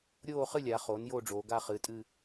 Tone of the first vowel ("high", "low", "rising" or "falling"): falling